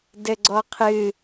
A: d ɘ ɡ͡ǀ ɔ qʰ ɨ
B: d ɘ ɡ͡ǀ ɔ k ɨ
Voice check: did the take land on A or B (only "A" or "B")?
A